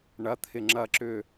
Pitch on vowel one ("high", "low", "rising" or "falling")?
rising